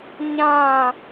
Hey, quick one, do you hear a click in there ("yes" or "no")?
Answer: no